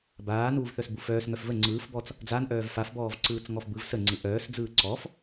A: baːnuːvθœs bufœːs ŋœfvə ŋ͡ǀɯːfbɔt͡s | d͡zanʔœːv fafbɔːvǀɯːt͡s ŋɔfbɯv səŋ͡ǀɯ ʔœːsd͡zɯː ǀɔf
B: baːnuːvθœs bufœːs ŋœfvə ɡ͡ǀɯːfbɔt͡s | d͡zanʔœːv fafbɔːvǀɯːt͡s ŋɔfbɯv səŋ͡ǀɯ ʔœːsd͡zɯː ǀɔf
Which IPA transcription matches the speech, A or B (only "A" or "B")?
A